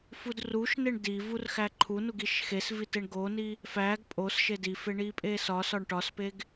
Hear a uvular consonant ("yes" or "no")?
no